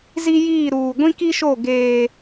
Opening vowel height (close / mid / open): close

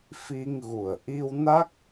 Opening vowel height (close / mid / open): close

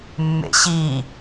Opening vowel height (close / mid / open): mid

